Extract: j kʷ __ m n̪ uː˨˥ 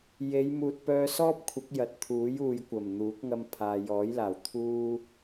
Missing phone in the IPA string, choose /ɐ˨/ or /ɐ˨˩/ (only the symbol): ɐ˨˩